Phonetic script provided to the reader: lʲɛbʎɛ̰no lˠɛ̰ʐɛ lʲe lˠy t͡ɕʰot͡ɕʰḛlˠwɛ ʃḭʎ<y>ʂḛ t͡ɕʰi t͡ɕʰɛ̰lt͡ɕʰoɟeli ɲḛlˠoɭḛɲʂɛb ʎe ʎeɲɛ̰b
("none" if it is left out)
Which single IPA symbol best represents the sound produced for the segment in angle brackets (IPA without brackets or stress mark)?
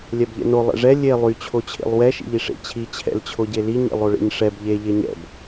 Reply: i